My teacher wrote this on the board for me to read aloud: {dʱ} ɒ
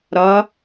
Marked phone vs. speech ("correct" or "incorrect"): incorrect